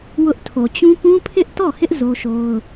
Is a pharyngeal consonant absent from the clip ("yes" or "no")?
yes